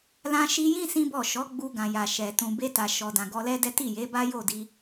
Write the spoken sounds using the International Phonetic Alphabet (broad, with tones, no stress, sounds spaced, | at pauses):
l ã˧ ʃ i˧ j ĩ˦ s ĩ˦ b ɔ˦˨ ʃ ɔ˨˦ ɡ͡b u˧ ɡ ã˨ j a˨ ʃ ɛ˨ t ũ˨ b e˧ t a˨ ʃ ɔ˨ d ã˨ ɡ ɔ˧ l ɛ˦ d ɛ˦ t i˦˨ j e˨˦ b a˦ j o˦˨ d i˧